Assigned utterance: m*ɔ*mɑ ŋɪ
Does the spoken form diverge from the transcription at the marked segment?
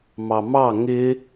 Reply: yes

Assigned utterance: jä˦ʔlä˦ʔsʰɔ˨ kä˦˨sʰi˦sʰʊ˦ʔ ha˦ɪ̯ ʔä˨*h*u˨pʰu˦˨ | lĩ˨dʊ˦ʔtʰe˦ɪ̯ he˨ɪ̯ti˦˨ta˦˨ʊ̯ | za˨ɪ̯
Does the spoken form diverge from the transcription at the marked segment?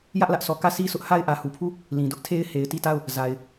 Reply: no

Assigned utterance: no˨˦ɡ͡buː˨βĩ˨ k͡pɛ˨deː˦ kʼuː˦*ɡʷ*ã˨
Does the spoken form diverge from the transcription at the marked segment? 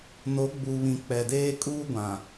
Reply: no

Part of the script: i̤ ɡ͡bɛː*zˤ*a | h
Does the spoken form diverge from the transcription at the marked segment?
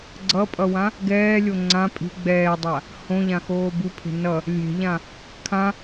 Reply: yes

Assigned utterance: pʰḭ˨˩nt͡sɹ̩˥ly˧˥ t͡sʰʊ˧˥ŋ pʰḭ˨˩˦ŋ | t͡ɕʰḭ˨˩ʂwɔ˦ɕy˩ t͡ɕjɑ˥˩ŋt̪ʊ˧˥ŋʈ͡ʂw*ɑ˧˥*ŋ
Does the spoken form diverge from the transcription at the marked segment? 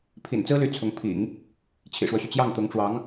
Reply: no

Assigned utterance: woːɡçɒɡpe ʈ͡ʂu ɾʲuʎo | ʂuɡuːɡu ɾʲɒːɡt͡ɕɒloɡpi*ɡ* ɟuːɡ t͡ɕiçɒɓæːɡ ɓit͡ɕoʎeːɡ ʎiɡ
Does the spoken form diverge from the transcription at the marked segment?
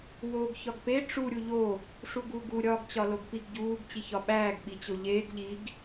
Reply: no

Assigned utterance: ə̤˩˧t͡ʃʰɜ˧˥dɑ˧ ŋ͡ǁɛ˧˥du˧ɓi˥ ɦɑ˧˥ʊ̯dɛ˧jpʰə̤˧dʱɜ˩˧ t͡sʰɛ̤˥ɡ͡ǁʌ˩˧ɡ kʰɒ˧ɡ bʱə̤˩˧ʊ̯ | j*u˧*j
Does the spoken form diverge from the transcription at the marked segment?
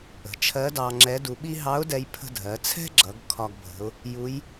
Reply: yes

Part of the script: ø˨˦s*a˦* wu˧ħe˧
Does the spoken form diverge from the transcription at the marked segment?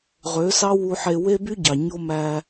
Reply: yes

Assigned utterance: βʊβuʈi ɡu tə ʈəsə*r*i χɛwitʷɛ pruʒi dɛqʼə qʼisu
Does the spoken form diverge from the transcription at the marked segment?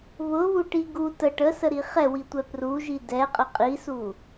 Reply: yes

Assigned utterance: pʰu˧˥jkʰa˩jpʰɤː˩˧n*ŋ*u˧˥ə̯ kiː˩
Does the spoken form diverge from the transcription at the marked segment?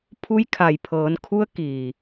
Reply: yes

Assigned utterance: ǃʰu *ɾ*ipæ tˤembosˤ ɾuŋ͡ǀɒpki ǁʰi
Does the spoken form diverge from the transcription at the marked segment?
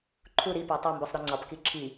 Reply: no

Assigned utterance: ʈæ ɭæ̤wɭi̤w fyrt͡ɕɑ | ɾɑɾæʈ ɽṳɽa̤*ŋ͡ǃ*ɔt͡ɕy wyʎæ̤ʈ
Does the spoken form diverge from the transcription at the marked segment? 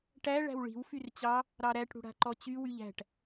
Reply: yes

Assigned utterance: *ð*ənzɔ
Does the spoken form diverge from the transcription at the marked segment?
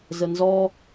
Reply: yes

